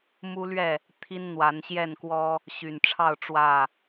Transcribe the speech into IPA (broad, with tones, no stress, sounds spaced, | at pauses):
m u˦ l ɥ ɛ˥˨ | t̪ʰ i˦ n n̪ w a˨˦ n ɕ j ɛ˥˨ n k w ɔ˦ | ɕ y˨˩ n ʈ͡ʂʰ ɑ˥˨ ʊ̯ ʈ͡ʂ w ä˥˨